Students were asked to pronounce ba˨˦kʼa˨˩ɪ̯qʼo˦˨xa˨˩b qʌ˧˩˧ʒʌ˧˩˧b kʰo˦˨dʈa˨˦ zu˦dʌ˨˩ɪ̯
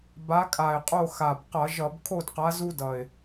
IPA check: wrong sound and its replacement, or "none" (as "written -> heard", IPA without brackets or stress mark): ʈ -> q